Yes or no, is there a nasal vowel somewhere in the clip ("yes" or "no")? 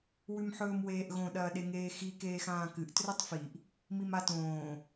yes